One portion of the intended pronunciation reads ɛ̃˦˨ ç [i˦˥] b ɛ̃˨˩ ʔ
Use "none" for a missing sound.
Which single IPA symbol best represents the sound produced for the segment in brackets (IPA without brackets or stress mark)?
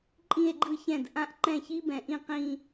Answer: i˦˥